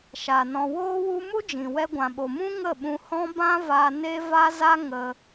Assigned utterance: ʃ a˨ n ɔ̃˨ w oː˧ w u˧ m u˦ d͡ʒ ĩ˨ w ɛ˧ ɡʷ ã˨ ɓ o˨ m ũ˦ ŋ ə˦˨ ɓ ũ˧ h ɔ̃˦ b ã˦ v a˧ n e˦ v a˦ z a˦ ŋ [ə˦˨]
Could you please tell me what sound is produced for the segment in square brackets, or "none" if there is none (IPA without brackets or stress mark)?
ə˧